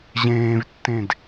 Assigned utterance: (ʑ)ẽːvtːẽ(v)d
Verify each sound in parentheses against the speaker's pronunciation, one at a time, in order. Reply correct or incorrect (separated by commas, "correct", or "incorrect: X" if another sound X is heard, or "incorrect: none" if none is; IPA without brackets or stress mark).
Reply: correct, incorrect: none